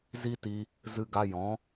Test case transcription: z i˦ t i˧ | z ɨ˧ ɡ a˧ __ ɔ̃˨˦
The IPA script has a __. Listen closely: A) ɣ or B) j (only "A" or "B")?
B